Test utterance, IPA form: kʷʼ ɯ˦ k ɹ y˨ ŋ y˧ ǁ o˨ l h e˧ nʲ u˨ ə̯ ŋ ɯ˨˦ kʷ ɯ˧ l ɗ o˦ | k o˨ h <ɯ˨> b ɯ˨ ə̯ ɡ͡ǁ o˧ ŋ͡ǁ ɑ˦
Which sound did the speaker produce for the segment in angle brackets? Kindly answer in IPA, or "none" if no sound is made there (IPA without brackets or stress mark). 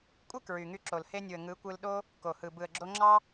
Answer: ɯ˨